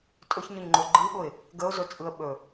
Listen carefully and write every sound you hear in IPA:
tʼ ɵ ç ɲ ɵ ɲ ŋ͡ǃ o ɡ͡ǃ ɯ ɓ ʊ ɪ̯ | ɡ ə ʊ̯ z ɵ t͡sʼ ɯ ə̯ ɓ ɵ

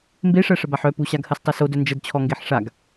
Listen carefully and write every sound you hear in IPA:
m b e ʂ ɜ ʂ ə b a ħ œ p u ɕ a ɡ h ɜ s tˤ ɜ s o d œ n d͡ʒ ə d t͡ɕʰ ɔ ŋ ɡ e ħ ʂ a ɡ

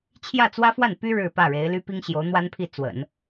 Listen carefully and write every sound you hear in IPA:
t͡ɕʰ j ä˥˩ t͡s w ä˥ f w a˥˩ n p y˥ ɻ ɻ̩˥˧ p ä˥˩ ɻ e˧˥ ɪ̯ l y˥ p i˥ ŋ ɕ j o˧˥ ʊ̯ n̪ w a˥ n pʰ i˥˩ t͡s w ə̰˨˩˦ n

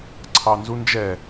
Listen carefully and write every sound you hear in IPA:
ǀʰ ɑ n z u n d͡ʒ ɛ

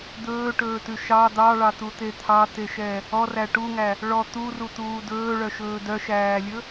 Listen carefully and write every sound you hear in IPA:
d̪ ɵː ʈ ɵː t ʉ ʃ ɑ d̪ ɑ ɭ ɑ t̪ u t̪ e t̪ʰ ɑ t̪ e ʃ ɛ | ɔ r æ ʈ u ŋ æ | ɭ ɔ t̪ u r u t̪ uː d ɵː ɭ œ ʃ ɵː d œ ʃ æː lʲ ɵ

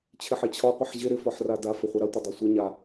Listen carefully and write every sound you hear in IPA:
t͡ɕʰ ɪ ħ e t͡ɕʰ ɒ qʷ ɪ ħ ʑ ɪ ɾ ɪ f ɒ ħ r a d a f ə χʷ a ɾ a tʷ ɪ dˤ e sʷ ə ɲ a

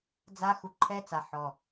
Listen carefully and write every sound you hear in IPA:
d͡z a˦ x u˧ ǃʰ ɛ˦ t͡s a˨ ħ ɔ˨

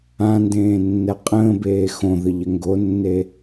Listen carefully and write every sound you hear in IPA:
ã n d ẽː nː ɛ qʼ ə̃ː b eː x õ ð ə ʎ ə ŋ ɡ o nː e

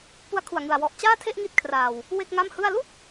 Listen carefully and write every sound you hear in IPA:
p u˦˥ a̯ kʰ u˨˩ a̯ ŋ ɯ˨˩ a̯ w ɔ˨˩ ʔ t͡ɕ aː˥˩ tʰ e˥˩ ʔ ŋ i˥˩ t̚ kʰ r aː˨˩ w | w e˥˩ k̚ ŋ a˥˩ m h ɯ˥˩ a̯ l u˥˩ k̚

